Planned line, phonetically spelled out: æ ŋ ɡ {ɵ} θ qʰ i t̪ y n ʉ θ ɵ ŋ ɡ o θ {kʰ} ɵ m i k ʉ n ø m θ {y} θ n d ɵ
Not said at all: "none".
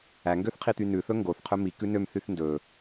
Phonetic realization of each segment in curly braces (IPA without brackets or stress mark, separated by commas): ø, qʰ, y